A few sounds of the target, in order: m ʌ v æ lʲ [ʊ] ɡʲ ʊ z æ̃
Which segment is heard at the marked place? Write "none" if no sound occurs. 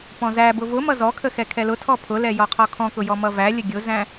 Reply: ə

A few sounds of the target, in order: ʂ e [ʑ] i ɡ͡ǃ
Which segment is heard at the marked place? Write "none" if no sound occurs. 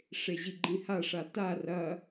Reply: ʑ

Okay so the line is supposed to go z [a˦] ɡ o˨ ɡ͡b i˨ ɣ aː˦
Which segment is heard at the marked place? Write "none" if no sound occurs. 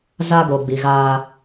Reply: a˦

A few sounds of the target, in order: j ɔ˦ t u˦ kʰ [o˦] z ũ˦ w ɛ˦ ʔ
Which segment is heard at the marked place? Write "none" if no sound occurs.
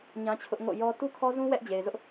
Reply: ɔ˦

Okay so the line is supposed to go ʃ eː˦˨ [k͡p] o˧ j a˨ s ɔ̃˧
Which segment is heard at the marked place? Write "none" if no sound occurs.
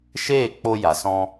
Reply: k͡p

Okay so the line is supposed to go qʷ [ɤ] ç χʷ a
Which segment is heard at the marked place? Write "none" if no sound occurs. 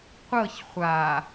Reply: ɤ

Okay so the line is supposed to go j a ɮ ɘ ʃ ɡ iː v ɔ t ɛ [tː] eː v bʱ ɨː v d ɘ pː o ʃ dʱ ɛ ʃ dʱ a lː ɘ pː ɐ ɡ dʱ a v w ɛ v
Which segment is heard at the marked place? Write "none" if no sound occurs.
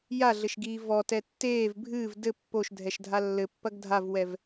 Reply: tː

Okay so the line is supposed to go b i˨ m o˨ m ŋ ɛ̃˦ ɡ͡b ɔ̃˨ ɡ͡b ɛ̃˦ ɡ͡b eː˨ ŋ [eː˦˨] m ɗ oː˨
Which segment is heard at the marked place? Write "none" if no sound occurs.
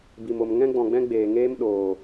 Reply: eː˦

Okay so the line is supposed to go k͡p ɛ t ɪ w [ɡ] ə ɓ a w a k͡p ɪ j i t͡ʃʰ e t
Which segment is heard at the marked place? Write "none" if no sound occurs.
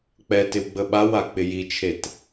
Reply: ɡ͡b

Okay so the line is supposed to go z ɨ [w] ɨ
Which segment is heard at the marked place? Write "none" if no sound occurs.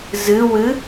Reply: w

